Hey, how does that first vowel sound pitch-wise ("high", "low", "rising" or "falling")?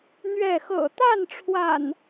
falling